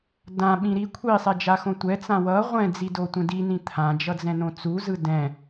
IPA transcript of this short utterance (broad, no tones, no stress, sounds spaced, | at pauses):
d ã ɓ ĩ ɾ i kʷʰ i sˤ ɛ d͡ʒ a x õ tʷ ɛ t͡s ã w ʌ ʁʷ ɛ̃ d͡z i d o tʷ ɛ̃ d i n ĩ t̪ʰ ã d͡ʒ ʌ d͡z ɛ̃ n õ t͡s u z ɯ d ɛ̃